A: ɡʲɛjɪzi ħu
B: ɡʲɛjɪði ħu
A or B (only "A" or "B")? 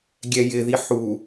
B